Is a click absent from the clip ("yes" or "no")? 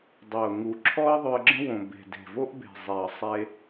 no